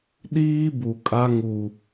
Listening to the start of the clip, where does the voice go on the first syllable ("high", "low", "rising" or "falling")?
high